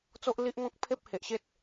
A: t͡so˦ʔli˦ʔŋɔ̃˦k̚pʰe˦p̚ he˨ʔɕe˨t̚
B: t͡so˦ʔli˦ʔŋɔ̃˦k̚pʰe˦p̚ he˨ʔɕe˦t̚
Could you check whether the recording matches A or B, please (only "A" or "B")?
B